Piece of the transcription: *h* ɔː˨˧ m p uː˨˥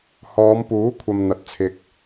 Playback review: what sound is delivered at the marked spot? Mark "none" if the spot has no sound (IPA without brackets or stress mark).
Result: h